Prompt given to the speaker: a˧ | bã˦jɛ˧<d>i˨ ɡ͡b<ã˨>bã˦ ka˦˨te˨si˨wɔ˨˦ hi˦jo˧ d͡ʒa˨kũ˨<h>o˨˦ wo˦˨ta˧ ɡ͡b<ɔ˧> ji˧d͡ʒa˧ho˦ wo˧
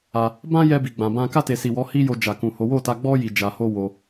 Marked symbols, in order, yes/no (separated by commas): no, no, yes, no